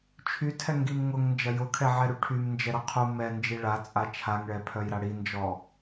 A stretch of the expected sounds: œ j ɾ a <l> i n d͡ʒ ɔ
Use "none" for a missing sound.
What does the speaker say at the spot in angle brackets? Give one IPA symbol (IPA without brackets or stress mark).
ɽ